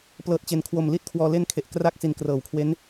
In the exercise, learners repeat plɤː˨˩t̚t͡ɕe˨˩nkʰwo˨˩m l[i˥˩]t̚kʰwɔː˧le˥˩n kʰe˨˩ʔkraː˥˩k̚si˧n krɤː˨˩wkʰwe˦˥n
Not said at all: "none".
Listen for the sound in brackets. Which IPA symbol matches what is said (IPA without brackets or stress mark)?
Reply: i˥˩